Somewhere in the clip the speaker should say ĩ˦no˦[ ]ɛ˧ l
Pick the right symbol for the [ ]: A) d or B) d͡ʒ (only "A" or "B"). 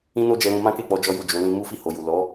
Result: B